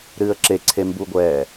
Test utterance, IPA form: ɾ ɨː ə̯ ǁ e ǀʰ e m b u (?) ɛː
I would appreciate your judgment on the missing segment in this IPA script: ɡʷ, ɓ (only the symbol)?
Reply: ɡʷ